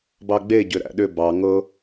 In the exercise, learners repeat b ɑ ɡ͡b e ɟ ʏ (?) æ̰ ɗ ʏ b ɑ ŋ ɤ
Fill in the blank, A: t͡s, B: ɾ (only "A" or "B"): B